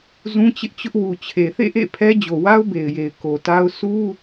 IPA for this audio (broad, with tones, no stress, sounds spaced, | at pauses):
z ũ˦ t͡ɕ ɪ˦ ʔ t͡ɕ ʊ˦ ʔ w u˨ t͡ɕʰ e˨ θ ḛ˦˨ ʔ ḛ˦˨ pʰ ɛ˦ d͡ʑ o˨ w a˦ ʊ̯ b e˨ ɪ̯ j e˨ ɪ̯ k o˨ t a˦ ʊ̯ s u˦